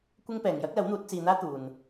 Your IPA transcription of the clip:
kʷɪ˥ŋ pɛː˨ŋjɐ˥k̚lɐ˨˥wn̪uː˨˥t̚ t͡siː˧n̪aː˥t̪uː˨n

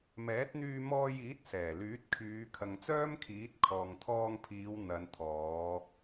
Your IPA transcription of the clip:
mɛː˨˥t̚n̪yː˧mɔː˧jiː˨˥t̚ sɛː˨˩lyː˨˥t̚kʰyː˨˧ kʰɐ˨ŋt͡sœː˥mkʰiː˨˥t̚ kʰɔː˨ŋt̪ʰɔː˧ŋpʰiː˨˧w n̪ɐ˨˧nt̪ʰɔː˨˧

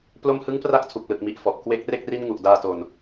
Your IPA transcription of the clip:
plo˧mhɯ˦˥ŋpra˦˥k̚ tʰu˨˩k̚lɯ˨˩k̚mi˨˩ʔ fɔ˨˩ʔ kwe˦˥k̚re˥˩k̚ ri˥˩n ŋu˨˩ʔdaː˧to˨˩n

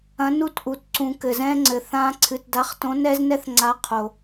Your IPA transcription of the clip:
ɐ̃˨˥nu˦tʔu˩t ǀũ˩ kɘ˩zɛ̃˦ŋ͡ǀɘ˩ θã˦ ǀʰɨ˩tda˨˥χtõ˨˥ nɛ˦znɛ˦θŋ͡ǀa˨˥ qʰo˩

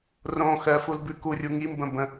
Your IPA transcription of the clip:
rõ xɜ fulbʉkurʲu ŋimbə̃ bə̃

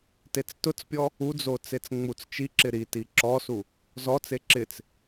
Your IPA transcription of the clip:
tet͡stʊt͡spʲɔ | ud͡zo t͡set͡sŋ͡mut͡st͡ʃiǁɪ ɾiti ǁɔsu | zɔt͡se ǁɪt͡s

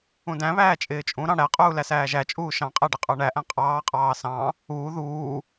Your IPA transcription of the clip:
ũdæ̃βæː t͡ʃʼɪːt͡ʃʼũɾɑ̃ ɽæqʼuː læsæːʒæt͡ʃʼuː ʃɑ̃qʼæ ɖɪqʼə˞ɳæʔæ̃ qʼɑːqʼɑː sɑ̃ | uː ðuː

